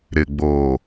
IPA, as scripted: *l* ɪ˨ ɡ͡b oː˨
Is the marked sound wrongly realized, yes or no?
yes